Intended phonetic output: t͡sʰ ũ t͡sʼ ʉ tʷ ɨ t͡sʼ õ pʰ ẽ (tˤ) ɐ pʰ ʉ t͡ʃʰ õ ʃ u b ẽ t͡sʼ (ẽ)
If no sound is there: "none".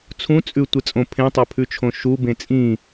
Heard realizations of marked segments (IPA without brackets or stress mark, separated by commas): tˤ, ĩ